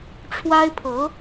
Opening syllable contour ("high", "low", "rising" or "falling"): high